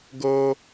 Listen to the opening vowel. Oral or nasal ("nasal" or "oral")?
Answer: oral